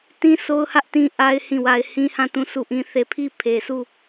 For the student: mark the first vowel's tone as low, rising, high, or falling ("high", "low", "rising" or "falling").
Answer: high